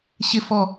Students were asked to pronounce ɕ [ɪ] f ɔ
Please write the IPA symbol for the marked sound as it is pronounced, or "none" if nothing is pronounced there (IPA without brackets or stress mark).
ɪ